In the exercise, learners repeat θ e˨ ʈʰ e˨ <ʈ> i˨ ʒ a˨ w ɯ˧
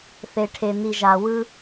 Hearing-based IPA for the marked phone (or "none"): n̪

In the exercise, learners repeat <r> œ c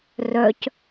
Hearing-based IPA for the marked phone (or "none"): r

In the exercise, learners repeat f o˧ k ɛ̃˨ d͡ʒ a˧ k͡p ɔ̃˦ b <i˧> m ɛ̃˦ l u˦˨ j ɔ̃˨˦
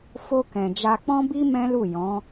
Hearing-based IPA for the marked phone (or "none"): i˦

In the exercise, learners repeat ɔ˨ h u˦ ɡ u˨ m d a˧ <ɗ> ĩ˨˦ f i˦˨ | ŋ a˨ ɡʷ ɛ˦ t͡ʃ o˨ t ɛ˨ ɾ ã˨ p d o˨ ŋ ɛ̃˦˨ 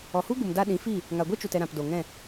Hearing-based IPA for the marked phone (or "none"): ɗ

